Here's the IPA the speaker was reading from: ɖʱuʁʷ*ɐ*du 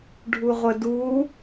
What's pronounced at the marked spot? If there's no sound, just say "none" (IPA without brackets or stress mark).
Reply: ə